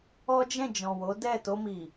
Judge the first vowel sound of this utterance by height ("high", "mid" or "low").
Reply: mid